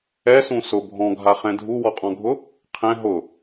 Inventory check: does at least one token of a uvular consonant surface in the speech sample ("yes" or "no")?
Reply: yes